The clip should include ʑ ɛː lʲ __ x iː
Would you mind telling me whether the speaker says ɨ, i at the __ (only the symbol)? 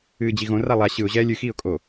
ɨ